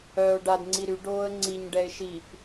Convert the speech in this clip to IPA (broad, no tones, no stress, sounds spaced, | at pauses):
œː ʊ̯ ɖ a d ŋ͡ǀ i ɾ y ɖ oː ə̯ ŋ͡ǀ i ɲ ɖ ɛ ɪ̯ ʃ i p